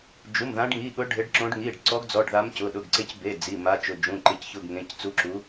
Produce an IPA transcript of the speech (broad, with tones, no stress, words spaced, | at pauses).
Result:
d͡ʒu˩˧˩mðã˨˦ɖŋi˩˧˩ɠʊ˨˦ ɖʱɪ˨˦ɖǁõ˨˦ɖ ŋi˩˧˩ɖ ǀɔ˨˦ɡd͡zɔ˩˧˩ɖ ða˨˦mcʊ˩˧˩ɗʊ˩˧˩ɡǀe˨˦c be˩˧˩ d͡zi˩˧˩ma˨˦t͡ʃʊ˩˧˩ d͡ʒũ˩˧˩ǃɪ˩˧˩cçʊ˩˧˩ɡ ŋẽ˩˧˩ct͡su˨˦ǁu˨˦